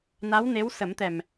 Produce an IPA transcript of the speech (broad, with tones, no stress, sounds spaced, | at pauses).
n a˧˥ w n e˧˥ w s ə˨˩˦ m t̪ ɛ˨˩ m